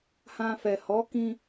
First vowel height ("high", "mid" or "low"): low